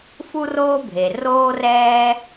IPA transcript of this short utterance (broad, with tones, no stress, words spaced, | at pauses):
fu˥roː˥bʱe˩ roː˥rɛː˥